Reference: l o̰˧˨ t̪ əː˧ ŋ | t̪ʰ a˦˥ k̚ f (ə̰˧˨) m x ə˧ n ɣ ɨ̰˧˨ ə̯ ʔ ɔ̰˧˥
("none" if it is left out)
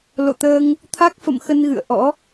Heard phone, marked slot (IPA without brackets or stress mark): ə̰˧˨